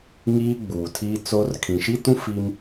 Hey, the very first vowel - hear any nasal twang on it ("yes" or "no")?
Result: no